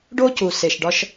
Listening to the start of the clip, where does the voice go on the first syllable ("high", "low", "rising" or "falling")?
high